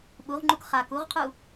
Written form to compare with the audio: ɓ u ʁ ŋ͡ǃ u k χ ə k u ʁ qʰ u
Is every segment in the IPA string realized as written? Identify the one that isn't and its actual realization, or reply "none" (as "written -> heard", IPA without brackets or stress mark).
ə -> a